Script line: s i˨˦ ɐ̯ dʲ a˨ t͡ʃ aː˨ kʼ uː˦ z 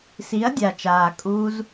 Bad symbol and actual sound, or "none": none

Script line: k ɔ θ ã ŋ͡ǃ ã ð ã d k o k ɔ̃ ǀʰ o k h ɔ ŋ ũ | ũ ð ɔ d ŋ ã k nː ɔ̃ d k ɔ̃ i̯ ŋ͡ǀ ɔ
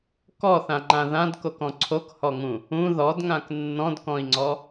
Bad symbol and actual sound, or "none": none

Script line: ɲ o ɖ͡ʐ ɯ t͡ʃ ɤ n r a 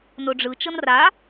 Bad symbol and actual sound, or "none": ɲ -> n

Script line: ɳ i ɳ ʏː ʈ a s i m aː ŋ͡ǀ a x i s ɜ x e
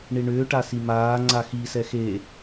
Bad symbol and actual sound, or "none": ɜ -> ɛ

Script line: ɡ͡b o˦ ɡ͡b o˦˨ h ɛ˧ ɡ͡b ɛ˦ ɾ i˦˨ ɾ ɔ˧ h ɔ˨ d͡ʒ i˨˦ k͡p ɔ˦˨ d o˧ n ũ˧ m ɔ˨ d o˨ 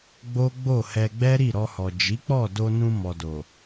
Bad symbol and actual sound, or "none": none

